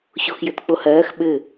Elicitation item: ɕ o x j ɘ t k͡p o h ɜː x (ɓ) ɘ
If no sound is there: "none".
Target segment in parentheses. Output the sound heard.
ɓ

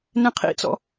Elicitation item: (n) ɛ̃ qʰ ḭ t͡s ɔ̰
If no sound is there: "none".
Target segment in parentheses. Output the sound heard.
n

